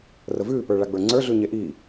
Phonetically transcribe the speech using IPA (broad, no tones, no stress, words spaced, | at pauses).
rəvʉː pə˞ɭaɡ͡bə˞ŋ͡ǀə˞ ɮʉɲeʔi